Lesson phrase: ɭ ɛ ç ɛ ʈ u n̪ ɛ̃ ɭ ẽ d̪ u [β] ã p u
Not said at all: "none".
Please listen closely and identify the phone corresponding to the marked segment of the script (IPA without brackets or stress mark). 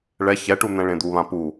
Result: β